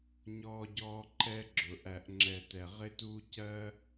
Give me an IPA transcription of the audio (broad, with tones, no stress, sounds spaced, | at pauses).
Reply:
ɲ ɔː˦ ɟ ɔː˦ ǃ ɛ˦ ɡ͡ǁ ʊ˨ ʔ æ˨ ʔ ŋ͡ǁ ɛ˨ t ɛ˨ ʁ ɪ˦ t uː˦ c ɜ˦